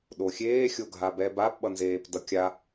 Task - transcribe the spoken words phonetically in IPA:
ɗoxʲeː xʲoɡʱabɛbap ɓʌnzeːpdʌkʲa

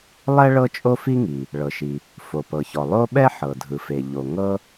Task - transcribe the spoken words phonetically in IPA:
lˠɛ˥ ɭɤ˥t͡ʃʼo˥fi˥ŋi˩ | ɭɤ˩ʃi˩ | fo˩pɤ˩çɔ˩ lˠo˥ ɓɛ˥ħɤ˩dʱɯ˩fe˩ ʎo˩ ŋɤ˥

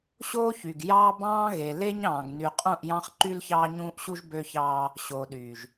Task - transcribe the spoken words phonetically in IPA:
ɕoː˦çy˨ɡ jɑː˦bɑ̃ː˦ɣe˨ le˦ɲɑ̃ː˨ɡny˨qʼũ˦˨ʔ jɑ̃˦χ ǃy˦lçɑː˦ɲũː˦ʔɕu˦ʒ bø˦çɑː˦ | ɕoː˨ɗyː˨ʒ

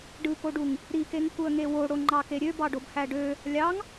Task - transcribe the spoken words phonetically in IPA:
ɖɯkoɖuŋ | ɾikeŋ kuə̯ŋewo ɽoŋ͡ǃɑkeɾʲø bɑɖobhæɖø | lʲɑŋ

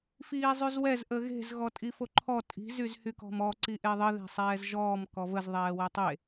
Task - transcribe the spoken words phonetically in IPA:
fiːzˤyzwɛz ʔəɣe̤z ɣɔtʼifoǃʰɔ tʼi̤ zyzhykɔ̤mɔ ǀiʔeðˤə ðe̤sˤɛːzʒɔːm kɔvəz ðˤɛːwɛtˤe

